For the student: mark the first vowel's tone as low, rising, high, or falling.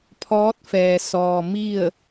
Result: rising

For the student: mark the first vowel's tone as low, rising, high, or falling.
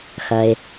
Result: low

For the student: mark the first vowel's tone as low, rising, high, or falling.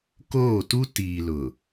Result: falling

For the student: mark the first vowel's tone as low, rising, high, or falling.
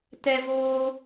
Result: high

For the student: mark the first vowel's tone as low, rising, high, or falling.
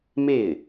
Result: falling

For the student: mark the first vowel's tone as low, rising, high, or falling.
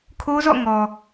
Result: high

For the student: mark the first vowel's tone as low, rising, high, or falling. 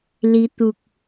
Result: rising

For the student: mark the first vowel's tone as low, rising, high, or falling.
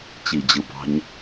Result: low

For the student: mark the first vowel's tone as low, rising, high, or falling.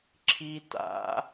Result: high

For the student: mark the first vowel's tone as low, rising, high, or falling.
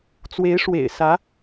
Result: rising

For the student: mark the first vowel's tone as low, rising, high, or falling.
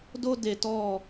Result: high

